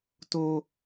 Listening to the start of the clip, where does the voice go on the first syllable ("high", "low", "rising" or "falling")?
high